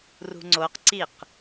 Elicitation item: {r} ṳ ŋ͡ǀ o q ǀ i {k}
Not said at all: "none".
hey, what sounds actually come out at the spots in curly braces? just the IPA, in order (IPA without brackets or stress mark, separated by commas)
r, q